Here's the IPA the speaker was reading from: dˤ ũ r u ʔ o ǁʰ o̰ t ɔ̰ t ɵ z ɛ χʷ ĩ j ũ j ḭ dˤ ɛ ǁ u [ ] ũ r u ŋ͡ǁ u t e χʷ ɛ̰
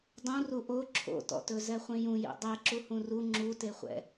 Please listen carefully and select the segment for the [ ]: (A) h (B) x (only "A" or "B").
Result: A